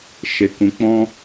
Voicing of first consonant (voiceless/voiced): voiceless